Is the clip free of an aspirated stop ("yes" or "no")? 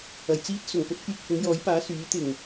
yes